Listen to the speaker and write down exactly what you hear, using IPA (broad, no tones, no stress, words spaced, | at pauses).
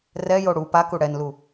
rɛjo ɽu paku ɽɛnlu